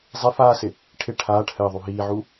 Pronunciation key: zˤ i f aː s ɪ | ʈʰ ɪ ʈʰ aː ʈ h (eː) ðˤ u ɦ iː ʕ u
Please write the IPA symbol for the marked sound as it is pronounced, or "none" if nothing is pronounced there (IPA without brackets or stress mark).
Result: ɘː